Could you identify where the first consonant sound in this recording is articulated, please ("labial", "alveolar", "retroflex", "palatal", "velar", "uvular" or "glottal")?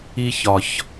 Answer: palatal